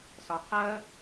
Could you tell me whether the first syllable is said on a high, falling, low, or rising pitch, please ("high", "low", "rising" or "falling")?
low